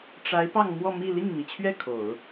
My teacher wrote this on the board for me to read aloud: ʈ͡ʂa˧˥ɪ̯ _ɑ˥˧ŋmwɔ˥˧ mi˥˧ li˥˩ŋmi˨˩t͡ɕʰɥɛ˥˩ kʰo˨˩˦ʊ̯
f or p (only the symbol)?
p